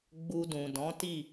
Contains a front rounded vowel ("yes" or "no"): no